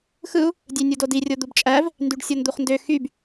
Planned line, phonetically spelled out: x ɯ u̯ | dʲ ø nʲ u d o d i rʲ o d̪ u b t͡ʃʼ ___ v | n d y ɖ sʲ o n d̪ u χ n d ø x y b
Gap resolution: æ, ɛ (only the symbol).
æ